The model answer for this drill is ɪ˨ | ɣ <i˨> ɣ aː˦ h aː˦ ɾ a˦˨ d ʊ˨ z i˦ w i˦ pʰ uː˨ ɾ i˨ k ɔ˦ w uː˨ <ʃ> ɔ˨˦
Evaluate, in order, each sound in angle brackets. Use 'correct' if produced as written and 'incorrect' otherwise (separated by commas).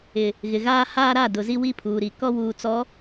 incorrect, incorrect